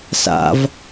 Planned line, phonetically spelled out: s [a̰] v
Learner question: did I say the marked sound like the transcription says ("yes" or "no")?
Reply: yes